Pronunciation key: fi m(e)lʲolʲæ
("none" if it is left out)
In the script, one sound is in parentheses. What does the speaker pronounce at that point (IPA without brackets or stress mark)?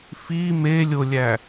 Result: e